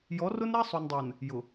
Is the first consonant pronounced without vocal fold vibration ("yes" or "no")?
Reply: no